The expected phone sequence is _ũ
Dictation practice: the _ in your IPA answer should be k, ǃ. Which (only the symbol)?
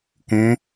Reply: k